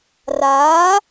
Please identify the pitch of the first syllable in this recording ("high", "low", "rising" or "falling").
rising